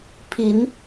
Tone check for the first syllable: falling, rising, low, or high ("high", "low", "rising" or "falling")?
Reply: rising